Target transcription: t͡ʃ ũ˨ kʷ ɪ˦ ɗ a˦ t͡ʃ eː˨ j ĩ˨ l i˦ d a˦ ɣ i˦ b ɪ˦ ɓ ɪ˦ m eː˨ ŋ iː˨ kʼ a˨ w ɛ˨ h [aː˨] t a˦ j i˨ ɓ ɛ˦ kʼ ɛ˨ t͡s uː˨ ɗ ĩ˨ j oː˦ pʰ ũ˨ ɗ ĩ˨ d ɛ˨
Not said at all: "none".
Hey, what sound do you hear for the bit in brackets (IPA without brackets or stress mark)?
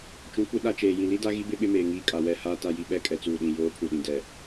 aː˦